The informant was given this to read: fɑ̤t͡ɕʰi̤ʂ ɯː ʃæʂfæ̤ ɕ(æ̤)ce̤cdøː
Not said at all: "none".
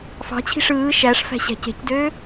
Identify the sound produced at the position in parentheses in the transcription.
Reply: æ̤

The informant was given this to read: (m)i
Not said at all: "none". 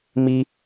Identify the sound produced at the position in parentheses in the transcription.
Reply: m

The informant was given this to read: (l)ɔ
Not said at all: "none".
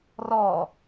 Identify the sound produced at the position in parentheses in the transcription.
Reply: r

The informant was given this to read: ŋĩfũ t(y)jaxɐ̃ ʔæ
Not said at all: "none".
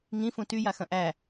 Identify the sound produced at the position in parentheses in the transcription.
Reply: y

